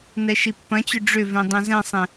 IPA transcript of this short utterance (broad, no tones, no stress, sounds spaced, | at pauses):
n ɛ ʃ i pː ɐ̃ t͡ɕ ʏ ɖ͡ʐ ʏ v ẽ dˤ ẽ z ɛ̃ sˤ ẽ